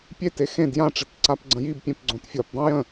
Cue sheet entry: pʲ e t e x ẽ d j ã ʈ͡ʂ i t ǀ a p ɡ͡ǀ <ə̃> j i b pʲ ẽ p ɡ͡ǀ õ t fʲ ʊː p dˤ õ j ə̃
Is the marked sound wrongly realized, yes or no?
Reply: no